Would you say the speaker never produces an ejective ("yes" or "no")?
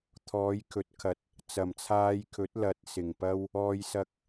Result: yes